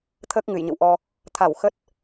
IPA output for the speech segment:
t̪ʰəː˦˥k̚ŋɨ˧˩jɲə̰˧˨w ʔɔ˧ | t̪ʰa˧˩w xə˦˥t̚

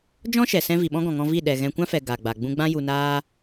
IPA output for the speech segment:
d͡ʒɔ̃˦ʃɛ˨sɛ̃˧ vi˨ɓɔ̃˦ɡɔ̃˨ ŋɔ̃˧vi˦˨ ɗɛ˨ɣɛ̃˧ kʷã˦fɛ˨ ɡa˨ɡ͡ba˨ ɡ͡bũ˧ɡ͡bã˦ ju˨naː˧

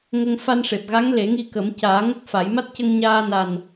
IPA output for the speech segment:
ŋə˧ŋ fa˧nʂe˨˩p̚ɣa˧˥ŋ le˨˩˦ŋi˧kə˨˩˦m caː˨˩˦ŋə˦˥k̚ fa˨˩˦j ma˦˥t̚cə˧ŋɲaː˧ na˨˩n

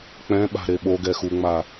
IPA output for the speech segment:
k͡pɛ̃ɓa̤ ɾeɓoɡɛ xuŋ͡ma

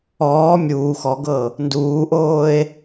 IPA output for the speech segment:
ɔː mʲuː xɔɡɤ | nduːʔoːe̯

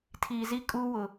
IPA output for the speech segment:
tʰiː˨zi˦ kʼuː˦wʊ˨

